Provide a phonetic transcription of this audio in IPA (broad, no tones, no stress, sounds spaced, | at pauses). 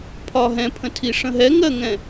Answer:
pʰ ɒ ɦ ɛ̃ pʰ ə̃ tʰ i ʂ ə̃ ɦ ɛ ŋ ɜ ŋ ɛ̃